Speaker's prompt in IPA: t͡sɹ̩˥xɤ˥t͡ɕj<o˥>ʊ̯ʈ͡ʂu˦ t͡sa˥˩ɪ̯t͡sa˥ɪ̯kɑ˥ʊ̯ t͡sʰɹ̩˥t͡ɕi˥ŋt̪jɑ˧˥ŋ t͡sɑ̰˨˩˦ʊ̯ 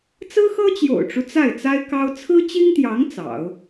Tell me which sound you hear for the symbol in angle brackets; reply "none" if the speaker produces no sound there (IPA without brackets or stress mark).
o̰˨˩